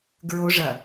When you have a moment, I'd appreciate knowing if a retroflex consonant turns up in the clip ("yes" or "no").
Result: yes